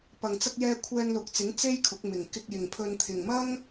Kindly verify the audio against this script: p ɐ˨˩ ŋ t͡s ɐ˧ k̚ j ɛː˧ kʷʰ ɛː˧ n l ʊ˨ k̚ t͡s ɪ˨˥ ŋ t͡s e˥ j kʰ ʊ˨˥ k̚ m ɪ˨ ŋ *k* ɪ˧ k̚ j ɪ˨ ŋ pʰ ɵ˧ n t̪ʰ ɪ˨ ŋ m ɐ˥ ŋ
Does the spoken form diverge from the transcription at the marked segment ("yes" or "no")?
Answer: no